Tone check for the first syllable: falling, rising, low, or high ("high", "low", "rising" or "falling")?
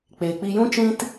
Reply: low